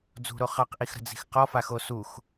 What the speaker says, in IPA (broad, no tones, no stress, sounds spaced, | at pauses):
d͡z ṳ ɾ o χ ɑ q ʔ i x ɾ ə̤ d͡z i̤ x q ɔ f a x o s u x